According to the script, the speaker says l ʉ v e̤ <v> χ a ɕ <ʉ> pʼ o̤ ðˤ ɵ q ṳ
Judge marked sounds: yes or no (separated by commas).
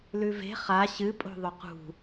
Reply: no, no